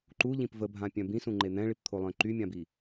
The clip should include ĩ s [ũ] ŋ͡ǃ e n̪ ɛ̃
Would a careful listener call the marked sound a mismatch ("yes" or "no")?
no